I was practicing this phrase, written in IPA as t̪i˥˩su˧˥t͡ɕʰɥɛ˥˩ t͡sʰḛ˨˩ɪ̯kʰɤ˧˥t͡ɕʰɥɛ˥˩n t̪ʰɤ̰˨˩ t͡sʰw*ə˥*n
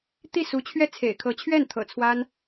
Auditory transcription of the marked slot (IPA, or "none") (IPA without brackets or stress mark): a˥